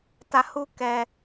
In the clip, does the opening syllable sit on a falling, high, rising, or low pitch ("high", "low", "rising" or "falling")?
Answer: low